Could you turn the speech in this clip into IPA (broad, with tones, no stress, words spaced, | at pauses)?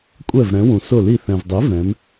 kʷʼɛ˧˩vɾɛ̃˩˧wũ˩ sʊ˧˩li˧˩ θɛ̃˩vdˤi˩˥vɛ̃˩˧m